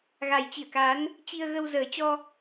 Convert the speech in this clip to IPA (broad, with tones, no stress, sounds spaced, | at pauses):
ɣ a˨˩ j t͡ɕ i˧˩ ə̯ k a˨˦ n | t͡ɕ i˧ ə̯ ɣ ə˧ w z əː˨˩ t͡ɕ ɔ˧